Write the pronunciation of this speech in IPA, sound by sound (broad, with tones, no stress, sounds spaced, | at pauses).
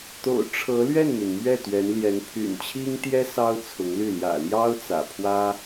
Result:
t̪ o̰˨˩ ʊ̯ ʈ͡ʂʰ ɤ˧˥ l ɥ ɛ˥˩ n m y˩ n m ɥ ɛ˥˩ t̪ ɥ ɛ˧˥ n l j ɛ˧˥ n pʰ y̰˨˩ n t͡ɕʰ i˥ ŋ t̪ j ɛ˥ s ɑ˥ ʊ̯ t͡sʰ ʊ˧˥ ŋ l y˥˩ l j ä̰˨˩ l j ɑ˥ ʊ̯ t͡s ä̰˨˩ pʰ w ä˥